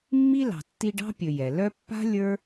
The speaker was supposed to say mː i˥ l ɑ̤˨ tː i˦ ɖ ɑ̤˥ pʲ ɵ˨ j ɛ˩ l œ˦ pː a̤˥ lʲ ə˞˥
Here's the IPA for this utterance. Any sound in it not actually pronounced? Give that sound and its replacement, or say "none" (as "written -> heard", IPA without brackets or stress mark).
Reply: none